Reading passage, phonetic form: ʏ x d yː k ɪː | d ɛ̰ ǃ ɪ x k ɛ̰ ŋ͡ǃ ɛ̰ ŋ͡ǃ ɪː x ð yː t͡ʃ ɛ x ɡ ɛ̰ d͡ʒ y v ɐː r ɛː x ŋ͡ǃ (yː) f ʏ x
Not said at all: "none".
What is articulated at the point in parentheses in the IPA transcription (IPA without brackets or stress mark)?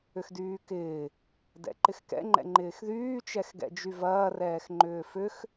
ʏː